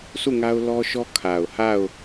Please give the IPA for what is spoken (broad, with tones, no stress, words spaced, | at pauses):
sʰu˦˨ŋa˦ʊ̯lɔ˦ʃɔ˦ kʰa˨ʊ̯ha˦˨ʊ̯